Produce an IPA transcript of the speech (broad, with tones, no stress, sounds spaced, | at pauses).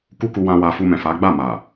k u˦ k u˧ w ã˦ w a˧ f u˧ m ɛ̃˨ f a˨˦ ɡ͡b a˦˨ m a˨